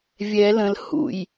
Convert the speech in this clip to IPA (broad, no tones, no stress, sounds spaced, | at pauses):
vʲ ɛ l ə̃ l h ṵ j